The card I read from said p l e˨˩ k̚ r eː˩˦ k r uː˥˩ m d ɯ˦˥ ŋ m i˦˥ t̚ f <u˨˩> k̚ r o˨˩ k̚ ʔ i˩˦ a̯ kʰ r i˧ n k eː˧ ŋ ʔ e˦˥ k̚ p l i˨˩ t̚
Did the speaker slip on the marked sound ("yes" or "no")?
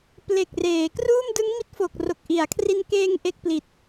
yes